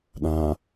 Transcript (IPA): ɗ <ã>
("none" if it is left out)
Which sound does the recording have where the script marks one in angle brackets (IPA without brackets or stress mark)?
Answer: ã